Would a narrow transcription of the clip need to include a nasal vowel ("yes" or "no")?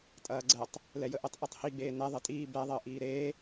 no